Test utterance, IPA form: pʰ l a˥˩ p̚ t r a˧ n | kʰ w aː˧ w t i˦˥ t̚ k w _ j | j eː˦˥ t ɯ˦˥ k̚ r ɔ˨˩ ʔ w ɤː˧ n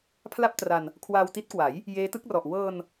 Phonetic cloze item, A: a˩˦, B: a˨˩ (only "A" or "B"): A